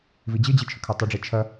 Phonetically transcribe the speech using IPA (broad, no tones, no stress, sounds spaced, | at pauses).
v i d͡ʑ ɨ d͡ʑ i t͡ʃʰ ɵ kʰ a tˤ e ɖ͡ʐ i t͡ʃʰ ɐ